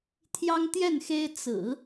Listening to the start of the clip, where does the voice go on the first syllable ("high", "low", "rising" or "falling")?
high